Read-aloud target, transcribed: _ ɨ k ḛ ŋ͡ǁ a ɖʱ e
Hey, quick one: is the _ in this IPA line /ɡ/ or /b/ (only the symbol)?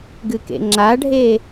ɡ